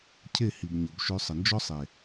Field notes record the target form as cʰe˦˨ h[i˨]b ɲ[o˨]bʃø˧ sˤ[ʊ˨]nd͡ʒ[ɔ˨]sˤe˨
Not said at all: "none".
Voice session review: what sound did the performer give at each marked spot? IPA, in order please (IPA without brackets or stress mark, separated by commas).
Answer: i˨, o˨, ə˨, ɔ˦